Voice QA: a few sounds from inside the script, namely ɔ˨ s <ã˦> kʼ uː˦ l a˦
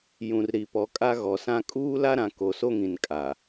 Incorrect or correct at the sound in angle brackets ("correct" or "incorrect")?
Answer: correct